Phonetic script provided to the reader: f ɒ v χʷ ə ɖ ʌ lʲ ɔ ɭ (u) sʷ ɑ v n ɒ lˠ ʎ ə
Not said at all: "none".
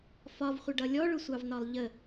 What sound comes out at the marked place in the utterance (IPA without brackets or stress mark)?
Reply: ʊ